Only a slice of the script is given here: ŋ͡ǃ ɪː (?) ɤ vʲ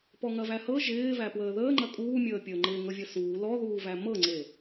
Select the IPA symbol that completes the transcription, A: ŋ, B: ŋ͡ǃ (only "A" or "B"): A